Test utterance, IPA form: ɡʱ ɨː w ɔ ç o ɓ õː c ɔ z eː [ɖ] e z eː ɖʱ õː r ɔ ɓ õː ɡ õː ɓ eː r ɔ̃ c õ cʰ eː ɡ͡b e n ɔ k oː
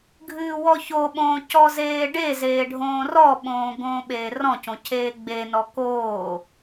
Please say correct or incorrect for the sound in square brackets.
correct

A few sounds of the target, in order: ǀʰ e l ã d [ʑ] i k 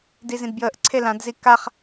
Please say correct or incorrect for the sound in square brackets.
incorrect: z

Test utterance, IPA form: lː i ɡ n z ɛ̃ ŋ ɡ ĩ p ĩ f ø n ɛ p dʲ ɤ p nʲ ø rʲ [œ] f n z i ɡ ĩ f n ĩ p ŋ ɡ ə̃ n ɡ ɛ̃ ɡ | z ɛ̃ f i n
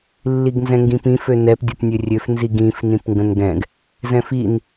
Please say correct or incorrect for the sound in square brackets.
incorrect: ø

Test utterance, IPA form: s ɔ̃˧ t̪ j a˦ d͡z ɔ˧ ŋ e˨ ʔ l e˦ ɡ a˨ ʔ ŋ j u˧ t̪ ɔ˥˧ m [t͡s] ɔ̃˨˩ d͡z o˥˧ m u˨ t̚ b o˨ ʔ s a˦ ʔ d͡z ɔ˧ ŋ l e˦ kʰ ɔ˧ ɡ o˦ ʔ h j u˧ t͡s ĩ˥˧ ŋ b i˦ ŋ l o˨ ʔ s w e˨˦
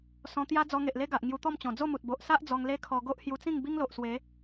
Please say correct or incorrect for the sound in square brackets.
incorrect: t͡ɕ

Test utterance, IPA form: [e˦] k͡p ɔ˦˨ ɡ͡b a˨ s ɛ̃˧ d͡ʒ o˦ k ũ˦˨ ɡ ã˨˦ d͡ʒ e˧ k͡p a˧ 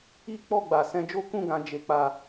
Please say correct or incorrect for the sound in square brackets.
incorrect: i˦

